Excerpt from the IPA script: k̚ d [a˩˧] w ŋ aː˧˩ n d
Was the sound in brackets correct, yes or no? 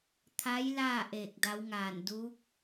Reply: no